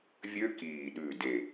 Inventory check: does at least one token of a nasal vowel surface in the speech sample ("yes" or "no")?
no